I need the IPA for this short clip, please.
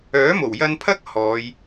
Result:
œː˨˥ m o˨˩ w j ɐ˧ n pʰ ɐ˥ k̚ h ɔː˨˧ j

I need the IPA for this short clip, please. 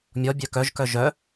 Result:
mʲ ɔ bʲ œ k œ ʒ k œ ʒ œ

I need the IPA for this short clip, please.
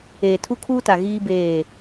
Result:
eː˨ tʰ u˦ kʰ uː˦ t a˨ ɣ iː˦ b eː˦˨

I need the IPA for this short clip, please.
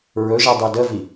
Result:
ɹ ɵ ʒ ɛ dˤ e d ə v i

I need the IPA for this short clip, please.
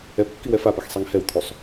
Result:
ɛ p kː i w ɛ f a p ɛ x sˤ i ŋ h ɛ w t̪ʰ u sˤ

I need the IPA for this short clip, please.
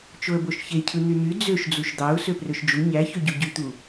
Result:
t͡ʃ o ə̯ b o ʃ ç e cʰ ɯ n̪ y n̪ y d͡z ø ʃ d͡z u ʃ d̪ ɑ ʊ̯ s ø p r ø ʃ d͡ʒ u ɲ æ ç ø ɟ u ɟ y t̪ u

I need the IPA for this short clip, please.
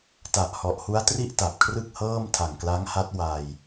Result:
t a˨˩ ʔ h ɔ˨˩ ʔ h u˦˥ a̯ t r i˥˩ ʔ t a˨˩ p̚ kʰ r ɯ˥˩ k̚ h ɤː˥˩ m tʰ a˨˩ ŋ k l a˦˥ ŋ h a˦˥ t̚ w a˧ j

